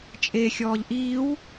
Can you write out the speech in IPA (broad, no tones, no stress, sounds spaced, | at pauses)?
t͡ʃʼ e xʲ ɔː ʎ ʔ iː w